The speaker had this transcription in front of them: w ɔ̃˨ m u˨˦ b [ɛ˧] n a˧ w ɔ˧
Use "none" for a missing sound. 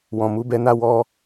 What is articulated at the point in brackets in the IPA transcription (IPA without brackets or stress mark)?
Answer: ɛ˧